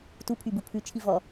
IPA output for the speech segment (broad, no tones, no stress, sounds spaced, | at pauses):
t u pʰ y b u pʰ ʉ t͡ʃʰ i v ɔ